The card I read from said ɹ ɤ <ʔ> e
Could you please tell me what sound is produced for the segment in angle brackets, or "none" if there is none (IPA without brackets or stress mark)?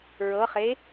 χ